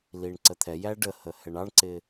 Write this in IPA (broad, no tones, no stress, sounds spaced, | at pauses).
l i ɳ ǀ ə t̪ʰ ɛ j æ ɖ ə h ə h ɛ ɳ ɑ ɳ ǀ ɪ